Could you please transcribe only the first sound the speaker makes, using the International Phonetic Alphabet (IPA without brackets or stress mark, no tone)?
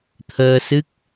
t̪ʰ